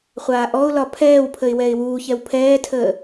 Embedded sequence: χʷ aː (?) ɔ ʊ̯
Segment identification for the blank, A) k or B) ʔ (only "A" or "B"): B